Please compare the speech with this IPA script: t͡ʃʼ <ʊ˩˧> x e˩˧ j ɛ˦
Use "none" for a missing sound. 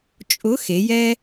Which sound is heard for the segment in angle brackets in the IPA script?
ʊ˨˥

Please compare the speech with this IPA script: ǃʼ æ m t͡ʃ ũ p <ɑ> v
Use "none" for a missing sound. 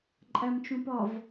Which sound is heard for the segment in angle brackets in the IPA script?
ɒ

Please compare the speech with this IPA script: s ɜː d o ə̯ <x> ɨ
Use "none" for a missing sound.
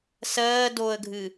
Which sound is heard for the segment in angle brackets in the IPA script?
ɡʱ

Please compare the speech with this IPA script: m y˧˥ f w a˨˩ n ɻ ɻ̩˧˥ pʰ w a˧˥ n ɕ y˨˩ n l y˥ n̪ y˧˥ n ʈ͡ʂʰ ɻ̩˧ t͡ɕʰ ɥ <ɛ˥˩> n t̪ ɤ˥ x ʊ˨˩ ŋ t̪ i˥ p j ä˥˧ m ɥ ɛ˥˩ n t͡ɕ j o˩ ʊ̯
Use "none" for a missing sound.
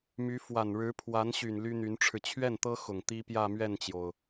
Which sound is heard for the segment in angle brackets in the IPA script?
ɛ˥˩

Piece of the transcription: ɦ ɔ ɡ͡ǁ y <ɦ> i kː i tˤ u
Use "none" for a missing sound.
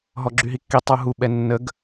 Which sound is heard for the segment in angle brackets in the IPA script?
ɦ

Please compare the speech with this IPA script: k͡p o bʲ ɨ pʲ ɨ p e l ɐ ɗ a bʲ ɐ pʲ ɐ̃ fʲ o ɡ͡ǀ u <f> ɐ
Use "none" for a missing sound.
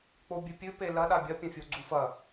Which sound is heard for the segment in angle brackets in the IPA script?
f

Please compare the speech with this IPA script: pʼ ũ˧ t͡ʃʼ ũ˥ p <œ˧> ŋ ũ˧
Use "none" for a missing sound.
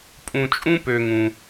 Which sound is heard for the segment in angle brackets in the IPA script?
ø˧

